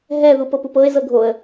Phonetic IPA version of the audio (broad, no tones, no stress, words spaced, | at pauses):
ɦɛ ðupɤpupɤɪ̯ zɤɡʱoə̯